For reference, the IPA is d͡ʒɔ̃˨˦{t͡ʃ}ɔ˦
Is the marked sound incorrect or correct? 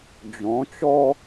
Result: correct